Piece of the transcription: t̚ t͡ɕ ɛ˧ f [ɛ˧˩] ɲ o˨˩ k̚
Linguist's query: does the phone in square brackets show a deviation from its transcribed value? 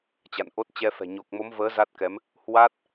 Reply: yes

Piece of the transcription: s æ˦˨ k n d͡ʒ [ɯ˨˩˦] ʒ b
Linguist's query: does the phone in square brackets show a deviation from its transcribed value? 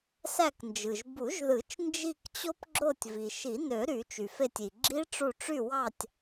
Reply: yes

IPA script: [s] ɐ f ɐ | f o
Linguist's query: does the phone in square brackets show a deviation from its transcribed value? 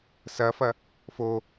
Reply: no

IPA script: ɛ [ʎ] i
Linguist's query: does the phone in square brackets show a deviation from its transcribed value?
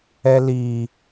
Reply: yes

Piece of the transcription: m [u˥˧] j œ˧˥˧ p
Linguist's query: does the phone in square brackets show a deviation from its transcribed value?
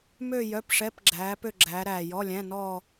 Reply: yes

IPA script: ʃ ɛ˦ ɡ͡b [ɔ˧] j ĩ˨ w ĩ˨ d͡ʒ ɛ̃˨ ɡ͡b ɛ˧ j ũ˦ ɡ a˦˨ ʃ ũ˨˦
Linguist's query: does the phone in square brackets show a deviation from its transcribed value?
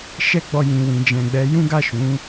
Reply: no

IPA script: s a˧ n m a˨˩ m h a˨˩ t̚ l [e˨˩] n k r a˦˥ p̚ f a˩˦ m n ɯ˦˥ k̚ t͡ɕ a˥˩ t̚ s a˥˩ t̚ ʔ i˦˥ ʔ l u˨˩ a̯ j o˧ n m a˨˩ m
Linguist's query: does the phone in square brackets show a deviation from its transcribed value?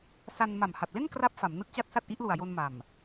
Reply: yes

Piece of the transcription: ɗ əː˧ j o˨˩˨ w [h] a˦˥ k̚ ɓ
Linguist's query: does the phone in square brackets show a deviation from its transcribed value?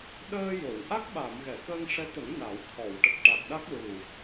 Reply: yes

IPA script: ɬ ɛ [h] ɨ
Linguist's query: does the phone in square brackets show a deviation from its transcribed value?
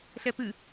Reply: yes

